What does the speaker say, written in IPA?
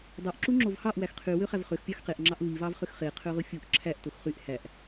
dˤ o ʔ ǁ u ŋ͡ǁ o v h ɑ ʔ w æ x qʰ y w ø χ æ v χ ø x pʲ ɑ x q e ʔ ŋ͡ǁ ɑ ʔ v i v ɑ v χ ø x χ e qʰ ø ʁ ɯ fʲ u ʔ ǁʰ æ ʔ t o x χ y ʔ h æ ʔ

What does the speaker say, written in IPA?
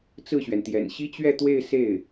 t͡s ɹ̩˥˩ ɕ ɥ ɛ˩ n t̪ j ɛ̰˨˩ n ɕ i˥ t͡ɕ ɥ ɛ˥˧ t̪ w e˥˧ ɪ̯ s e˥˩ ɪ̯

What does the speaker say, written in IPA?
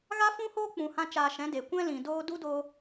ɣ a˦ f ũ˦ h oː˦ k͡p ũ˧ h ã˦ t͡ʃ aː˧ ʃ ɛ̃˨˦ d e˨ kʷ ɛ̃˦ l ĩ˨ d oː˦ d u˦ d oː˧

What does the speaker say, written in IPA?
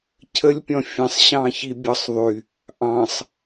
cʰ ə lʲ pʲ ɔ̃ fʲ ə̃ sˤ ɕ ɑ̃ ç i bʲ ɒ sˤ ðˤ y | ʔ ɑ̃ sˤ

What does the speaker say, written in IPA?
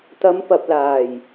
t̪ ɐ˨˧ m p ɐ˨ p̚ l aː˨˩ j

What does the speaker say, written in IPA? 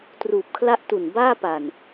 t r uː˨˩ p̚ kʰ l a˥˩ ʔ t u˨˩ n b aː˥˩ p a˨˩ n

